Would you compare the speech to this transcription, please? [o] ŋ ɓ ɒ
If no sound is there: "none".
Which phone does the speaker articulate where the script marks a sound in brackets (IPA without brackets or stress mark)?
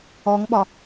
ɔ